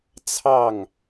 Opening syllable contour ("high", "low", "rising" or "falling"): falling